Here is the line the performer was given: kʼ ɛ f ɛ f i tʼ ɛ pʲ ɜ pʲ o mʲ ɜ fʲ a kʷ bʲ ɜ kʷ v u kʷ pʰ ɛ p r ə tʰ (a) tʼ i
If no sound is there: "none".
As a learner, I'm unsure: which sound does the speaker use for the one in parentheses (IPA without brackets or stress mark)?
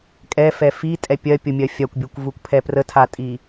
a